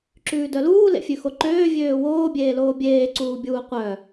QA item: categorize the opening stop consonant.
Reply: click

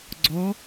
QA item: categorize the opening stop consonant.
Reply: click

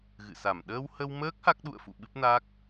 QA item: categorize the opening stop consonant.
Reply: implosive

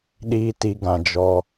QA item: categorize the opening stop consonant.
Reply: implosive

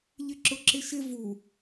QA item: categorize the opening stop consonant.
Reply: click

